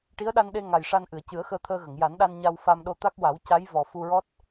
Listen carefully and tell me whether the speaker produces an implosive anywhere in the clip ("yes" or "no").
yes